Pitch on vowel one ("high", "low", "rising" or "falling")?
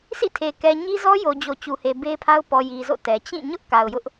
falling